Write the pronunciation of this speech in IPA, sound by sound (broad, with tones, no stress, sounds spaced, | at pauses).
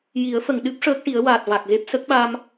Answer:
j i˨˩˦ ə̯ f ə˨˩˨ ŋ ɗ ɨ˦˥ p̚ ʂ əː˦˥ k̚ ʈ i˨˩˦ ə̯ w aː˨˩ t̚ v a˨˩ k̚ ɣ e˦˥ p̚ s ə˦˥ k̚ ɓ a˧ m